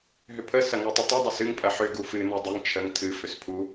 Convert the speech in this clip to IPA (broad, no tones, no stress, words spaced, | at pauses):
ɦʏpʰə sɐŋotˤətˤə dˤəsɨŋ pʼɐħʏ ɡufɨ nudˤʏŋ t͡ʃʰəŋ tʰɨ fʏspʰu